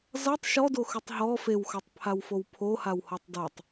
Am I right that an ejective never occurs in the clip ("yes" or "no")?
yes